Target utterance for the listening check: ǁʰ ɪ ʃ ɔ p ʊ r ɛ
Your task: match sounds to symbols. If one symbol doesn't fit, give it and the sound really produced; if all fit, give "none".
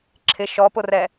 none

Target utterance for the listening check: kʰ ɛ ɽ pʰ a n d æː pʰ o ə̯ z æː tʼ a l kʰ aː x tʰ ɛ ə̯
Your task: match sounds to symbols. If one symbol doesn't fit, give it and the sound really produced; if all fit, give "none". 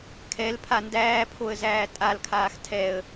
ɽ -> l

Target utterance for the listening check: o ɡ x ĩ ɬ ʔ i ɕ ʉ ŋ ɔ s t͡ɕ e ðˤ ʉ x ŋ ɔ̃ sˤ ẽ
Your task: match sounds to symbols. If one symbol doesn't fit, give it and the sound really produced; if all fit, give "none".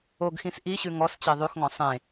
ɬ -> s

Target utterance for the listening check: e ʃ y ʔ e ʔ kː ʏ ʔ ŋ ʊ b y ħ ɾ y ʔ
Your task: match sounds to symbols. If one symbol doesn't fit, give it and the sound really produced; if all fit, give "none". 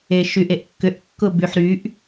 ŋ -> kː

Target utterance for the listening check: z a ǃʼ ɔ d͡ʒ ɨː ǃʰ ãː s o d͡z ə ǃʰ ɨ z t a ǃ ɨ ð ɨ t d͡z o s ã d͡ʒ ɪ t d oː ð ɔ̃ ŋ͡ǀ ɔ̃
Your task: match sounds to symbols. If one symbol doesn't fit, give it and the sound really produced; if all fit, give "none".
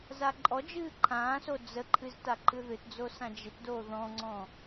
none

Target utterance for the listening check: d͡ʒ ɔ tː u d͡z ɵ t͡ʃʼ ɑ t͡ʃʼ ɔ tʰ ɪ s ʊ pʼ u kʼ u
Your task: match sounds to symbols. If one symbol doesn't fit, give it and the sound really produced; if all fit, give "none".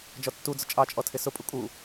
ɵ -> ʊ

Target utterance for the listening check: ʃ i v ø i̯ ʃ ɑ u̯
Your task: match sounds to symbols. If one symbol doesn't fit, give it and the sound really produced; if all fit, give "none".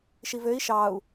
none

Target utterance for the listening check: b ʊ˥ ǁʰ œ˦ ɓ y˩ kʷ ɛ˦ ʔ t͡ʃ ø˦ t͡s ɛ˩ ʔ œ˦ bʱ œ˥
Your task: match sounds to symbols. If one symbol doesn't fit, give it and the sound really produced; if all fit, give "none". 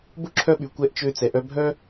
none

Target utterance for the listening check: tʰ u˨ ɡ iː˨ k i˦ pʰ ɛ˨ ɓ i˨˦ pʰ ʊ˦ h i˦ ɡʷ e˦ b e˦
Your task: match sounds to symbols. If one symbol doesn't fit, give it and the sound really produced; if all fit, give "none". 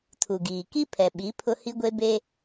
none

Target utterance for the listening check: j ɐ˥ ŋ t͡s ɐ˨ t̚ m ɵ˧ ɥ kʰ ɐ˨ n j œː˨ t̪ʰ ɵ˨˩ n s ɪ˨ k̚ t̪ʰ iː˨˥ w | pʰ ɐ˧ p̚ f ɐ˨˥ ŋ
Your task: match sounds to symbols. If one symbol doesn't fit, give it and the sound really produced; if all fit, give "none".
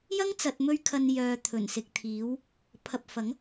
none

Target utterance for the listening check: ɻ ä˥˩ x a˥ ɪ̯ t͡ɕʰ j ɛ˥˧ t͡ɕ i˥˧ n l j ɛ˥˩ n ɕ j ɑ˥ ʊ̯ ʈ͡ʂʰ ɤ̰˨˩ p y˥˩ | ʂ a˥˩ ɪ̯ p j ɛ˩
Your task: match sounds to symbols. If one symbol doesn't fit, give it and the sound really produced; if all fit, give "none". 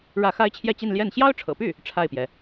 ʂ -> ʈ͡ʂʰ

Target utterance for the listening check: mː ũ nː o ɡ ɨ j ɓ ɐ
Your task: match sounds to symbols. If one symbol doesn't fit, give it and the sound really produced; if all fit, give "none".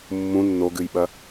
none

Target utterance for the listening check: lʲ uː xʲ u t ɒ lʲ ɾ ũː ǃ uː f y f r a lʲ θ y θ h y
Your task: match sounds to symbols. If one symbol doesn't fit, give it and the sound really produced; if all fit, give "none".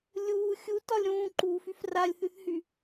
none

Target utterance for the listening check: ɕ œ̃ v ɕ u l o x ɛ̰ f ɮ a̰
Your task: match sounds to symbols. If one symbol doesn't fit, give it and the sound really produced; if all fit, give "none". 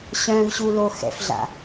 none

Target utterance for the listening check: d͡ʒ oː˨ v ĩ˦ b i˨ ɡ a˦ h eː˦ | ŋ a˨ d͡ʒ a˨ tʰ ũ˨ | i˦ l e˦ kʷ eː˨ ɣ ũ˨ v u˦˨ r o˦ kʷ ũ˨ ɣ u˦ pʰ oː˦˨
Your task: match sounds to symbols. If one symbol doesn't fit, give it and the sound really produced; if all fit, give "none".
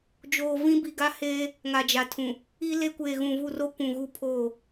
none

